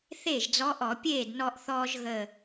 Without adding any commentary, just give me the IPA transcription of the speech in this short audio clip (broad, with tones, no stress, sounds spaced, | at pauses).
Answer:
θ eː˥˩ ʒ d͡z ɔ˧˥ ʔ ɔ˧˩˧ pʲ eː˥˩ d n ɔ˧ ʔ θ ɔː˧ ʒ ɣ ə˧˩